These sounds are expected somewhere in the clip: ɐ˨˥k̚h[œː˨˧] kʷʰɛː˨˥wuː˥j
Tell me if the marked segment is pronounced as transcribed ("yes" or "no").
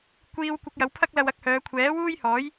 yes